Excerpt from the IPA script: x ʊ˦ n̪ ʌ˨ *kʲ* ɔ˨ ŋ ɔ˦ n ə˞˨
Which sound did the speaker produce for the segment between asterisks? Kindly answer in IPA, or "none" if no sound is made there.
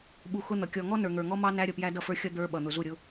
kʲ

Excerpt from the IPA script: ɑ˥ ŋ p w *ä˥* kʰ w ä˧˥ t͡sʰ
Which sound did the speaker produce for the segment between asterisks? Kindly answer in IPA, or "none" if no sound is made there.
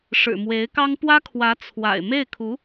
ä˥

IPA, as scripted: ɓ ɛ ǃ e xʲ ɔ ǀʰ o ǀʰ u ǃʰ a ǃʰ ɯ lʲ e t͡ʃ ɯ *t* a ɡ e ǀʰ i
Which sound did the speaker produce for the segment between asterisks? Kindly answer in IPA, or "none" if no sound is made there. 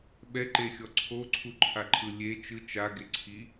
t͡ʃ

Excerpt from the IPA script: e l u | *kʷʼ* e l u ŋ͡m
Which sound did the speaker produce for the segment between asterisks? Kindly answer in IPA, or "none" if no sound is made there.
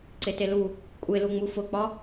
kʷʼ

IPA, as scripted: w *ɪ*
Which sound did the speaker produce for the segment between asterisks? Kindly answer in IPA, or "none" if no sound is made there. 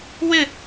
ɪ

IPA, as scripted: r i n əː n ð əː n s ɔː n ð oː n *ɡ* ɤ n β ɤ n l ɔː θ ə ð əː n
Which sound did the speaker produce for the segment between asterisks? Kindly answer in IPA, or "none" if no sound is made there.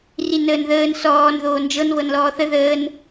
d͡ʒ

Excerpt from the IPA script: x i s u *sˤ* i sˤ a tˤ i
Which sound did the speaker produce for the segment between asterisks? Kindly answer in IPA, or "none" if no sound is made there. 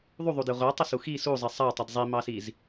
zˤ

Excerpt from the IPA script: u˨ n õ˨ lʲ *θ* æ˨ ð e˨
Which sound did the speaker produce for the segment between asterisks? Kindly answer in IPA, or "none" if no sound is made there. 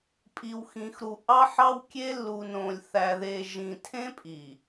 θ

